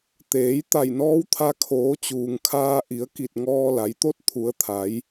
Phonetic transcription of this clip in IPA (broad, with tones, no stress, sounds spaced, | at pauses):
t̪ eː˩˧ j t̪ a˧˩ j n ɔː˧˥ w t̪ʰ a˧ kʰ oː˩˧ t͡ɕ uː˩ ŋ kʰ aː˧ ʔ i˩˧ ə̯ k i˧˩ t̚ ŋ ɔː˧ l a˩˧ j t̪ o˥˨ t̚ t̪ʰ u˩˧ ə̯ t̪ʰ a˩˧ j